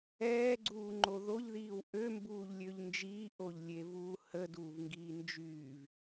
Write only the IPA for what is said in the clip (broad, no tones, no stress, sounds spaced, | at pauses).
ɛː ɡ͡ǀ uː ŋ͡ǃ o ð o ʎ ð iː w ʔ ø m b uː ʎ lʲ ø ʎ n d͡ʒ iː ʔ o ʎ lʲ e v uː h ə d uː v ŋ ɡ iː n d͡ʒ yː v